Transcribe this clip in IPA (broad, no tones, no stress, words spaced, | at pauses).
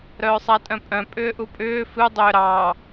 ɾœːsˤatʼœ̃pʼœ̃ pʼʏːʔupʼʏː fɨ dˤʏːɾɑː